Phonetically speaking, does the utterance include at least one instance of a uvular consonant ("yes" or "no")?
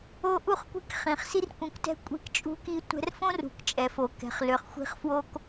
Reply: yes